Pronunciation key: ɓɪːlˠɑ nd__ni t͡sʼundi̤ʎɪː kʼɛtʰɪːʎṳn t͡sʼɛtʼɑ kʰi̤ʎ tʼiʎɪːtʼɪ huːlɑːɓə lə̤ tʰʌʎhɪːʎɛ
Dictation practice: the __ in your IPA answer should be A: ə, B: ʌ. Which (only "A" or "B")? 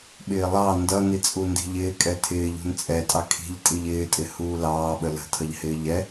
B